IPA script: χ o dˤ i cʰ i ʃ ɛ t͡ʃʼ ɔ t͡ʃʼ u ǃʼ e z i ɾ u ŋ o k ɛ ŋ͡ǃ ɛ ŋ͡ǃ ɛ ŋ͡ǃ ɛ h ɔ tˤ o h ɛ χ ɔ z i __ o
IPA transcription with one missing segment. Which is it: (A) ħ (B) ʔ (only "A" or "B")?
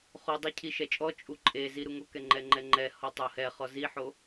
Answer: A